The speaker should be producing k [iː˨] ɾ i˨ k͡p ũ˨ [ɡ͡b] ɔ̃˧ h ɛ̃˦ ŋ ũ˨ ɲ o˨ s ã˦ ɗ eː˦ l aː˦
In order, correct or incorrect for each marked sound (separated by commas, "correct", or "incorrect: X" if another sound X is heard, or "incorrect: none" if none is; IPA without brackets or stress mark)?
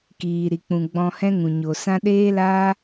correct, correct